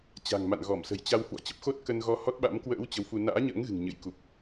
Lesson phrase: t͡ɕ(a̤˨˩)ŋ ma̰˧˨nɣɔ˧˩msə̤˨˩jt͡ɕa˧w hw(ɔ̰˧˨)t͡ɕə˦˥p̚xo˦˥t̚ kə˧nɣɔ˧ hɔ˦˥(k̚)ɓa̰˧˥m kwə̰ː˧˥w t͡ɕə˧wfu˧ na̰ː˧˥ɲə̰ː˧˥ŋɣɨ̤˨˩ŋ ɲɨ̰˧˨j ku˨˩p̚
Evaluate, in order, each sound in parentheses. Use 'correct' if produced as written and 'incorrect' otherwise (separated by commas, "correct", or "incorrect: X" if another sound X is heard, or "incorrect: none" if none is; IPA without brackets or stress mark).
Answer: correct, correct, incorrect: t̚